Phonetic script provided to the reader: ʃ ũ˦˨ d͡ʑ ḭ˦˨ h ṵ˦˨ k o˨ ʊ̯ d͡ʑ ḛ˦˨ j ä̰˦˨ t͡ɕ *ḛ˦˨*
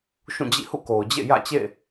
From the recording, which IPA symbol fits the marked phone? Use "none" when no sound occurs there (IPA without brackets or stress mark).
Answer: ḛ˦˨